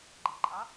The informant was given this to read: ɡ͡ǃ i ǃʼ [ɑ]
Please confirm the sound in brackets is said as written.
yes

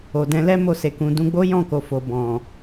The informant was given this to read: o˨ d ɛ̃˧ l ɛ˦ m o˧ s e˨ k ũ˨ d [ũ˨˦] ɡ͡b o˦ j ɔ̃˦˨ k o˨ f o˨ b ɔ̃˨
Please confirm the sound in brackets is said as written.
no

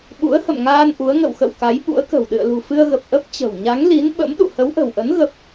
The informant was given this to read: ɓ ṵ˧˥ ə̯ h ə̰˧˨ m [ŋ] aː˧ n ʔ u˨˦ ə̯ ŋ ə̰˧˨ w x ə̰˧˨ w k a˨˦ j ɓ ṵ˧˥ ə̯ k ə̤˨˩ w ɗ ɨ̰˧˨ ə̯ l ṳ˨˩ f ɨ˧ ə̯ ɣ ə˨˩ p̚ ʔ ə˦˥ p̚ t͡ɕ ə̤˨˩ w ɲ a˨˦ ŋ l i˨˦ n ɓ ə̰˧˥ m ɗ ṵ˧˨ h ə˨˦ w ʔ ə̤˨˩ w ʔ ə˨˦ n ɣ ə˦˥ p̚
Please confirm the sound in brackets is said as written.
yes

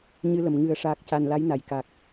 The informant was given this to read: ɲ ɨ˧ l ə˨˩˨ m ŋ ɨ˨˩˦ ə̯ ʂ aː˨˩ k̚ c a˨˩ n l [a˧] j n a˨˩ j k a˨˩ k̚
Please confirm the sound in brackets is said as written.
no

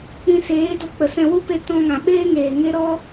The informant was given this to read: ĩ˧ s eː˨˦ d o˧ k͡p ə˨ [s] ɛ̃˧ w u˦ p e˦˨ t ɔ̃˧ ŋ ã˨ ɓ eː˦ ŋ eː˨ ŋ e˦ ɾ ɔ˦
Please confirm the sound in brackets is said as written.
yes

